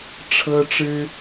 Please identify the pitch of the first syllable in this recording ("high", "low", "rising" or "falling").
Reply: high